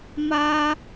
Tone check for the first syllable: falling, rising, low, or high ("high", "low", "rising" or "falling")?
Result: high